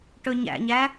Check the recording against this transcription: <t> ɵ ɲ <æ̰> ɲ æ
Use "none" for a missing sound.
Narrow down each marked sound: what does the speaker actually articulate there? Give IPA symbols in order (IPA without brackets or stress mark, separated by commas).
ʈ, æ̰